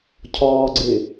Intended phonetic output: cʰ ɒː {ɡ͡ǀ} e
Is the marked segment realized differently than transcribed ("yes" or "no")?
no